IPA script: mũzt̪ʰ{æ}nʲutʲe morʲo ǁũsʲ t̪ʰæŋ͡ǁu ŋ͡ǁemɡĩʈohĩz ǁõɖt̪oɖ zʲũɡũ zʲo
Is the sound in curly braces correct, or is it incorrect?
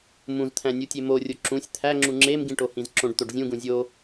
incorrect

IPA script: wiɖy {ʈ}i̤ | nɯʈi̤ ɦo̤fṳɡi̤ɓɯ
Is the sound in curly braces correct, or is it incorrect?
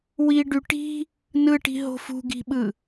correct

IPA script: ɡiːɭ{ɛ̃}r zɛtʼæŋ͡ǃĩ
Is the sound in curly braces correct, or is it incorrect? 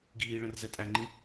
incorrect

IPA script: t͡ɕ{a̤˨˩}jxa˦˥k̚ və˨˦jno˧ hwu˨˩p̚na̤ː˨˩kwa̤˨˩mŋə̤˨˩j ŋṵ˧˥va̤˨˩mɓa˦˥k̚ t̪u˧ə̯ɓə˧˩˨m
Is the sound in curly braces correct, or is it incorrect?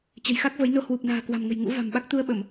incorrect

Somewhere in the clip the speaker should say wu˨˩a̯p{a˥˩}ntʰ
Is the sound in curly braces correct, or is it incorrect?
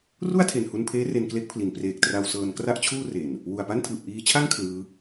correct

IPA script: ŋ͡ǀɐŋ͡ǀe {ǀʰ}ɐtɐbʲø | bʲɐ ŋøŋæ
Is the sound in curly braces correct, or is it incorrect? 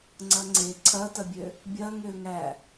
correct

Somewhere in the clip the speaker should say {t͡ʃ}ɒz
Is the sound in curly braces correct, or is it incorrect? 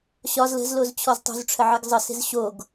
incorrect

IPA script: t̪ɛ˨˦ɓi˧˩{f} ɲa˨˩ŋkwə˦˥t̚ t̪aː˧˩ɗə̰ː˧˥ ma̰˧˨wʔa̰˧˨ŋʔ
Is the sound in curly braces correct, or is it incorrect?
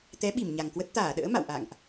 incorrect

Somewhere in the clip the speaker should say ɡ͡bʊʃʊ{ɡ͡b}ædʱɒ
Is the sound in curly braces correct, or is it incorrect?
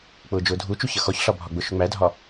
incorrect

